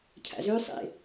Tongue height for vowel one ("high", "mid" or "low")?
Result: low